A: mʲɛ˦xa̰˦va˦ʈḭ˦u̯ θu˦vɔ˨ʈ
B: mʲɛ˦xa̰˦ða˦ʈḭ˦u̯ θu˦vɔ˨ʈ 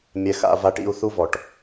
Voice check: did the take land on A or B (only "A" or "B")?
A